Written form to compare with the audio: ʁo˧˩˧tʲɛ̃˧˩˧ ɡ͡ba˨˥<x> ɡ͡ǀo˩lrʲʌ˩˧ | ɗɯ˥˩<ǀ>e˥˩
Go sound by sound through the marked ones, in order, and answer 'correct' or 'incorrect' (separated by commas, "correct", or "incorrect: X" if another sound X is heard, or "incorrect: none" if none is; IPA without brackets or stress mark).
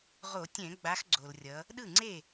correct, incorrect: ŋ͡ǀ